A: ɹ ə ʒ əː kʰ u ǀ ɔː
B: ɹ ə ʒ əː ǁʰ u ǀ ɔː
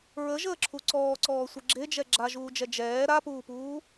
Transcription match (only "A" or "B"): B